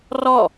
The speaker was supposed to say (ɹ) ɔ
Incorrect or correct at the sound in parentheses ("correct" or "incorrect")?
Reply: incorrect